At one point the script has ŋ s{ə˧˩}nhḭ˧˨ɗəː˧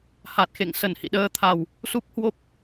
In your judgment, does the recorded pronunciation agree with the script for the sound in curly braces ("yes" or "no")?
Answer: yes